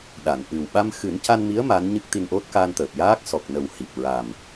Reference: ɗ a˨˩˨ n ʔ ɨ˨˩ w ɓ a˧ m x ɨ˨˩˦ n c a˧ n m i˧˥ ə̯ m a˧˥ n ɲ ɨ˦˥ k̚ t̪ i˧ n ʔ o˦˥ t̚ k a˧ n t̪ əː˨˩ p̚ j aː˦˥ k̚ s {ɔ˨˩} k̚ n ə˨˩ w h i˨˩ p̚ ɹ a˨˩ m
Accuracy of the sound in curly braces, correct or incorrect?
correct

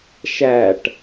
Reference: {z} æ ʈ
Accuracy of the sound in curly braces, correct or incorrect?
incorrect: ʃ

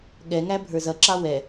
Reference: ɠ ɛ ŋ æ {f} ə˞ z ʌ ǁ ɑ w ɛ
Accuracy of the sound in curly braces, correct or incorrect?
incorrect: bʱ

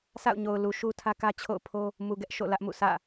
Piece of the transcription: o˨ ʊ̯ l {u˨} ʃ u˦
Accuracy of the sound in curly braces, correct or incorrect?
correct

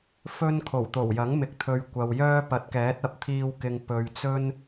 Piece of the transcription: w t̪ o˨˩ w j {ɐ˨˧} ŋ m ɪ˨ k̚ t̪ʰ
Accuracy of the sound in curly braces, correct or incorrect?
incorrect: ɐ˨˥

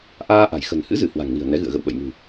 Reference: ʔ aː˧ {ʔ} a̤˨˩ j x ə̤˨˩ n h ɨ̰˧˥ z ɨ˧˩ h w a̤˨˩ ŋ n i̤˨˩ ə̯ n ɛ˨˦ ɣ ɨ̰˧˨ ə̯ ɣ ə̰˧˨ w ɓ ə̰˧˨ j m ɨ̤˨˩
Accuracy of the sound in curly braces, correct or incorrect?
correct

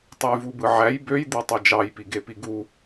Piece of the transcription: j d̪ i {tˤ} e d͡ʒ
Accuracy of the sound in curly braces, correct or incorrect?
correct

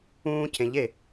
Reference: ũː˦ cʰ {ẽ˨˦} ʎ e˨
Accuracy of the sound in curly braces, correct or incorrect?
correct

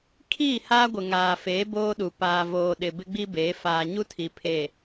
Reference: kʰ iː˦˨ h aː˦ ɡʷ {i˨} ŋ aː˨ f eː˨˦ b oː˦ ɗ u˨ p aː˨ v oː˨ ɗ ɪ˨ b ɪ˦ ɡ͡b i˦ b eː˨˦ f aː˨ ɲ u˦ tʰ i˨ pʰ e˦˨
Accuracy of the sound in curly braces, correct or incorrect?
incorrect: ɪ˨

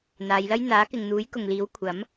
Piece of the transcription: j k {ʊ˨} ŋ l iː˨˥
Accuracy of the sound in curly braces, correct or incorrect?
correct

